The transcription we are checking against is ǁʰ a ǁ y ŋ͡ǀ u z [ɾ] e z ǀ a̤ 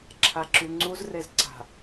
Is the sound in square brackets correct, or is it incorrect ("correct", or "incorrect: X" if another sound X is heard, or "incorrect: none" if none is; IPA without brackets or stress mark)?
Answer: incorrect: r